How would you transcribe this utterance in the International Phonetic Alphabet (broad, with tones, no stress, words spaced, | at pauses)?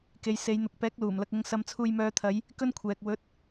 ke˨˧j se˨˧jn̪ʊ˨˥k̚ pɛː˨˥k̚luː˨˩m lɐ˨k̚ʊ˧ŋ sɐ˧mt͡sʰuː˧jmœː˧t̪ʰɐ˨˧j | kɵ˥nkʷʰɛː˨k̚ wɵ˨˥t̚